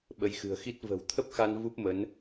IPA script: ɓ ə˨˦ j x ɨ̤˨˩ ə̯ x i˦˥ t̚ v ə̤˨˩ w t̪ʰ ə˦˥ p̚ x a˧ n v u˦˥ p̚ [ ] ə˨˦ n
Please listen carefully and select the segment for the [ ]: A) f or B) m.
B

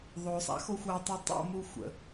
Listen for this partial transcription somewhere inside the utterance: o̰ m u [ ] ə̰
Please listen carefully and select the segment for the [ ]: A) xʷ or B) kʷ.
A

